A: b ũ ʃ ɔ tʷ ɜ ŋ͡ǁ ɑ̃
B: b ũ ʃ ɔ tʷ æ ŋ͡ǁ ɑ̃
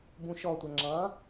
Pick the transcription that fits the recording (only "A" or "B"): B